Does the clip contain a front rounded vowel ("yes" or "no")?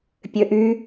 yes